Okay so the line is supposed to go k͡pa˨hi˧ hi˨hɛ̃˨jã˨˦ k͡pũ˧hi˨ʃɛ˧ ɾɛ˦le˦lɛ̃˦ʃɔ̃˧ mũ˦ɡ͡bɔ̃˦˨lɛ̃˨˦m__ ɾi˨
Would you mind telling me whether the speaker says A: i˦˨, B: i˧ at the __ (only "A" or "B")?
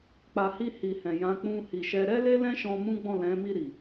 A